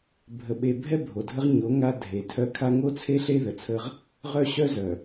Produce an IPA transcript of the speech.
bʱ ə˨ ɓ e˨ bʱ ɛ˦ bʱ o˨ dʱ ə˦ ʁ ɲ o˨˦ ŋ a˦ dʱ e˨˦ tʰ œ˦ kʰ a˦ ŋ o˦ t͡sʰ e˦ ɬ e˦ ð ə˨ t͡sʰ ə˦ ʁ | ʁ œ˦ ɕ œ˦ z œ˨

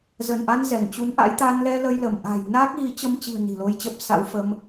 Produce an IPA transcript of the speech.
z ə˧˩ n ʔ a˧ n z ɛ˧˩ ŋ t͡ɕ u˨˦ n ʔ a̰˧˥ j t̪ a˧ n l ɛ˧ l ə˧ j l ə˧˩ m ʔ a̤˨˩ j n aː˦˥ k̚ ɣ i˨˦ t͡ɕ ə˧ m t͡ɕ i̤˨˩ ə̯ n i̤˨˩ l o˧ j t͡ɕ ə˦˥ p̚ s a̰˧˥ w f ə˧ m

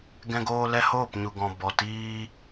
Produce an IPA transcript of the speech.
ɡ ɛ̃˧ ɡ oː˧ l ɛ˧ h oː˦˨ p ɲ u˨ ɡ ɔ̃˨ b ɔ˨ t iː˧

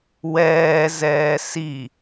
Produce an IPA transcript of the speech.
w ɛː z ɛː s i

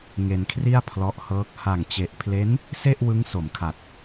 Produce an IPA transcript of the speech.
ŋ e˧ n kʰ r i˥˩ a̯ pʰ l ɔ˦˥ ʔ h ɤː˦˥ k̚ h a˨˩ ŋ t͡ɕ e˨˩ ʔ pʰ l e˦˥ n | s e˥˩ ʔ w ɯ˦˥ ŋ s o˩˦ m kʰ a˨˩ t̚

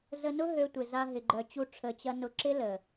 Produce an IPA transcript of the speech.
z ə˧ n ʊ˦ ɦ ø˧ tʷ ɪ˨ z a˧ ɦ ɪ˨ ɡ͡ǃ œ˨ t͡ɕ u˧ ʈ͡ʂʰ ə˨ t͡ɕ ɐ˧ n ʊ˧ ǁ ɪ˦ l ə˨

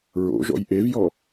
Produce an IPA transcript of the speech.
ɹ o̰ ʒ ɔ̰ j ʔ e v j ɔ

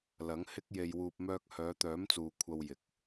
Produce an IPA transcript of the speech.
l ɐ˨˥ ŋ h ɪ˥ k̚ j e˧ j w uː˧ p̚ m œː˧ k̚ h œː˨˧ t̪ œː˨˥ m t͡s uː˨ kʷʰ ɐ˧ w j ɪ˨˥ k̚

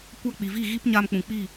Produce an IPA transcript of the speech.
kʷ a˧ k͡p i˨ v i˦˨ ɣ i˦ p ɲ a˧ m k͡p ũ˨ k͡p i˦˨

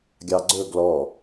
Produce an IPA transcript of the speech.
ɡʲ ɑ ɡ͡ǀ ɵ ɡ l ɔ

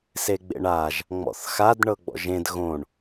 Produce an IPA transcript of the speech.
s e ɡ͡b ḛ ɳ a ʒ | ŋ͡m ɔ̰ θ x a d ɳ ɤ ɡ͡b ɔ̰ ʒ ẽ d ɣ õ ɳ

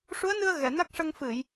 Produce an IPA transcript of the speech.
ʂ u˧˥ ə̯ n ɨ˧ ə̯ ɣ ɛ˨˩˨ n a˦˥ k̚ ʂ ə˧ ŋ f ɨ˨˩˨ j

